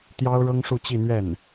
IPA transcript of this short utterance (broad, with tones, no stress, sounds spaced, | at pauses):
t̪ j ɑ˥ ʊ̯ ɻ ɤ˥ ŋ ʂ u˥˧ t͡ɕ i˥˧ n̪ ɥ ɛ˥˩ n